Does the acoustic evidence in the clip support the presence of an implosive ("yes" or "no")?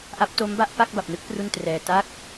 no